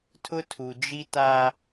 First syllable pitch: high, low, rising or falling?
high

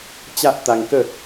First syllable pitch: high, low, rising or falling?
high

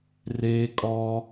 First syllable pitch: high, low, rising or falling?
high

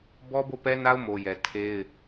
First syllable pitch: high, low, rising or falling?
high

